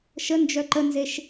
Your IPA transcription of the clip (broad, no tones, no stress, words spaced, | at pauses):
ʃə nd͡ʒœǃənzeʃ